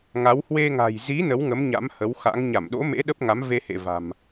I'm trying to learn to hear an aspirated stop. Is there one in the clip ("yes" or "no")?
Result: no